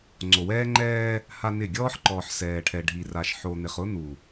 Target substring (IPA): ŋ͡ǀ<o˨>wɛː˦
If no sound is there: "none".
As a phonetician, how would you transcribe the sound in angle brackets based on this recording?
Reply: o˨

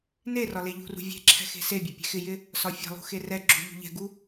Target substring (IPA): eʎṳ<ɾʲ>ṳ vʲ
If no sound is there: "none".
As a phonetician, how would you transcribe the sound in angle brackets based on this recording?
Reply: r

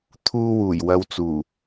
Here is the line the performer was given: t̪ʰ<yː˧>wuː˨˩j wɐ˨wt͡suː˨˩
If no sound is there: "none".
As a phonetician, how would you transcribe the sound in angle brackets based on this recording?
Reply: uː˧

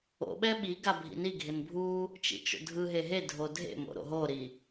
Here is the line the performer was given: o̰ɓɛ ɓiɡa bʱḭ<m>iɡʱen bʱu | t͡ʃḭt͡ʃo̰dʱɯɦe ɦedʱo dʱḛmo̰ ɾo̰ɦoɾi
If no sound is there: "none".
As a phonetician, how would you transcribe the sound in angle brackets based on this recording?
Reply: n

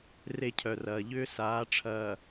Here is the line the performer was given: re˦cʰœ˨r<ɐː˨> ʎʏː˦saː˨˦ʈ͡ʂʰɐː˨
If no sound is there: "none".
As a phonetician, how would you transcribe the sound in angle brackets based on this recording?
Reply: ɐː˨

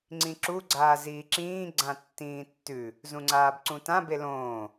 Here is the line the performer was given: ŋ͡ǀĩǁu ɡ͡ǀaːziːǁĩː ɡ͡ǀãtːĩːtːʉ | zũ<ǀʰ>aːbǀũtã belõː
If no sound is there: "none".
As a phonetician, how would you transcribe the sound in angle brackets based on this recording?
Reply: ŋ͡ǀ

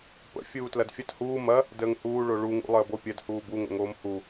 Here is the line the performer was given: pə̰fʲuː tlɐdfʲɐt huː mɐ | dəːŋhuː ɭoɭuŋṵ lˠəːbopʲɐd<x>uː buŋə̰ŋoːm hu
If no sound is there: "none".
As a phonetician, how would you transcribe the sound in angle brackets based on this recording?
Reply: h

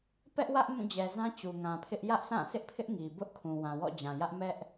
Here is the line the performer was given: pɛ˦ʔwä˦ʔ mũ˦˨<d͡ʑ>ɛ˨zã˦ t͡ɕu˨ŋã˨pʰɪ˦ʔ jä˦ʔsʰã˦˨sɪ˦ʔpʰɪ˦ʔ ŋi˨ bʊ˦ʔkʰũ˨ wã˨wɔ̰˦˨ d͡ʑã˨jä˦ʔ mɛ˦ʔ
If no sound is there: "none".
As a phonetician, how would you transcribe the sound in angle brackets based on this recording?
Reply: d͡ʑ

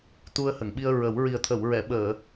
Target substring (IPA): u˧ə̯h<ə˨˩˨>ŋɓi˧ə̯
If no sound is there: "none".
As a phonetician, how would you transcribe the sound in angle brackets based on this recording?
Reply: ə˨˩˨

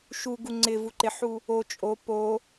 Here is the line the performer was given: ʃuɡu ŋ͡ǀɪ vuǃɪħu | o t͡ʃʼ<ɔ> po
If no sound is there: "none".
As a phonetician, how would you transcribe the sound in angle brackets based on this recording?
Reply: o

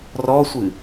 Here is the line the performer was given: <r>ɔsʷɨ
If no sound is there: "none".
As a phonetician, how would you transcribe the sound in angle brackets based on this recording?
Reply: r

